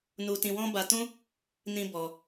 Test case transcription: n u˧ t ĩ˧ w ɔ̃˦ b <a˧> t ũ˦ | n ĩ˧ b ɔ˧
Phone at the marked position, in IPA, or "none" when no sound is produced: a˧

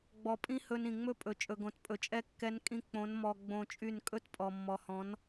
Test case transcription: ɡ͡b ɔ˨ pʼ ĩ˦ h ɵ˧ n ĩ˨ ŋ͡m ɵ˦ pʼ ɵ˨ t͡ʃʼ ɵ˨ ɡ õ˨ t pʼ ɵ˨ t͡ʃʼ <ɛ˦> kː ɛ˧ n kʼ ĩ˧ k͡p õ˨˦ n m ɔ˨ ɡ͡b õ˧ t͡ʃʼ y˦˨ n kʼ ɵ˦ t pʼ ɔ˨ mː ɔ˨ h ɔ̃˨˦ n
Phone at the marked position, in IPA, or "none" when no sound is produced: ɛ˦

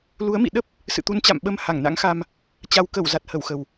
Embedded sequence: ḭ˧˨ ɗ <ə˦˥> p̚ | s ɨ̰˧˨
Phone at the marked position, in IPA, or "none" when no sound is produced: ə˦˥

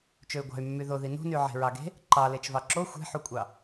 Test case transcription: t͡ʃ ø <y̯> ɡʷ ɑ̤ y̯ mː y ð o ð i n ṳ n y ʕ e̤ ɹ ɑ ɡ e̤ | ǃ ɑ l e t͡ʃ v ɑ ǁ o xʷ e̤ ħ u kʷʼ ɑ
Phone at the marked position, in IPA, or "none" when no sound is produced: y̯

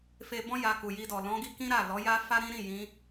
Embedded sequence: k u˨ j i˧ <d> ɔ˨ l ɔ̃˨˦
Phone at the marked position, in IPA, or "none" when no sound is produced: d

